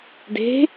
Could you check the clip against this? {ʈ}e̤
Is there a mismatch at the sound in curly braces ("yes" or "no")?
yes